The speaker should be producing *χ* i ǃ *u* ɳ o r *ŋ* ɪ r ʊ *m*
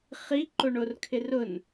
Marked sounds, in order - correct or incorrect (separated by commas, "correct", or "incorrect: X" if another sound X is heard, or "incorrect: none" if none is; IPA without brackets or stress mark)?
correct, incorrect: o, incorrect: kʰ, incorrect: n